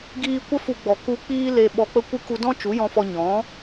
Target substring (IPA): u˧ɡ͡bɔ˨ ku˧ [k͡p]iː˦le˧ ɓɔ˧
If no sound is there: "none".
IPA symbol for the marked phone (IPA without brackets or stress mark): k͡p